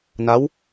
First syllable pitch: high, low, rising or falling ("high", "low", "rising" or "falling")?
rising